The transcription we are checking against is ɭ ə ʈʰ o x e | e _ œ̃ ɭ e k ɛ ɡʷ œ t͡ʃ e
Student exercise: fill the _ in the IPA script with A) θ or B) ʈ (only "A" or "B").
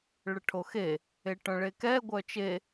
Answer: B